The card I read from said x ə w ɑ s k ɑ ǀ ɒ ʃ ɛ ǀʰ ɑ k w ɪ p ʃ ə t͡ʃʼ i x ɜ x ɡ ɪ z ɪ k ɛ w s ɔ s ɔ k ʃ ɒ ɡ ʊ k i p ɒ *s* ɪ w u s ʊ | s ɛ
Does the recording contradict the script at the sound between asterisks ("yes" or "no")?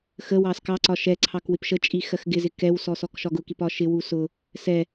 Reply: yes